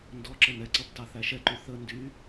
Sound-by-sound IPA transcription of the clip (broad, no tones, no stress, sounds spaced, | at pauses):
n d ɔ ǁ ə n ɛ ǀ ʌ b t ɑ θ æ ʃ ɛ ǃ y θ ə n d y